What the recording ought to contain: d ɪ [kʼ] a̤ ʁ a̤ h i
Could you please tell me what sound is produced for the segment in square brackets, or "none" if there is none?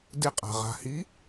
qʼ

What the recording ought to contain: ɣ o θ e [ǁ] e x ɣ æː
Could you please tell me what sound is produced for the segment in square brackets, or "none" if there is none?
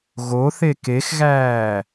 k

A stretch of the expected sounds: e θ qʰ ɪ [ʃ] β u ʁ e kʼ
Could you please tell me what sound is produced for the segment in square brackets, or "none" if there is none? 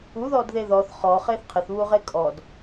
θ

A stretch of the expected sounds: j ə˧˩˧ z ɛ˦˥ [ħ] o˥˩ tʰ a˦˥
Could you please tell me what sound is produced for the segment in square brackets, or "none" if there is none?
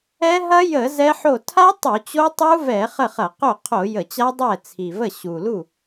ħ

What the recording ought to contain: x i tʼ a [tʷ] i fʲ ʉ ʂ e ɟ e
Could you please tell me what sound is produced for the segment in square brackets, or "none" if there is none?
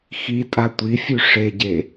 tʷ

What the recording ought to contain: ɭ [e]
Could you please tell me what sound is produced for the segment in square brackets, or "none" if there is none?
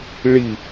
i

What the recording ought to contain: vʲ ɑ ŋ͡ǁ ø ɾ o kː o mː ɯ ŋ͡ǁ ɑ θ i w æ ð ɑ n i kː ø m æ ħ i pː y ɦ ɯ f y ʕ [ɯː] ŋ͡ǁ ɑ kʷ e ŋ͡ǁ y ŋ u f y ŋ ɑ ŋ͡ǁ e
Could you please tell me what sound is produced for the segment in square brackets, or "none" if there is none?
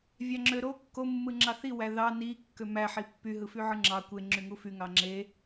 ɯ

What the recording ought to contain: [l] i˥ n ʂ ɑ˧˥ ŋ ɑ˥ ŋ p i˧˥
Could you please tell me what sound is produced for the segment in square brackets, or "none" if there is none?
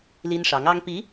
l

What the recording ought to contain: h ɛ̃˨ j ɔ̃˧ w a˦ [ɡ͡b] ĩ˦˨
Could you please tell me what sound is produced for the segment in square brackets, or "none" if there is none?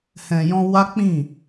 k͡p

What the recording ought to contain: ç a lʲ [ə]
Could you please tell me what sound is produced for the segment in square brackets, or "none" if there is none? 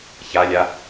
a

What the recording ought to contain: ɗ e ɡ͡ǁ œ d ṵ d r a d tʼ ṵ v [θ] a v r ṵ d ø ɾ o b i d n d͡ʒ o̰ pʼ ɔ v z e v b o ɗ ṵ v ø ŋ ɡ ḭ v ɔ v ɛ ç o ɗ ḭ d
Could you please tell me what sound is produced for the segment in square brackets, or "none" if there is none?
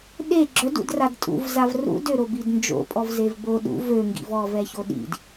z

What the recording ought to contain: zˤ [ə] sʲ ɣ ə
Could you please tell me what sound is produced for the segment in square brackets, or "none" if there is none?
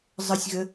ə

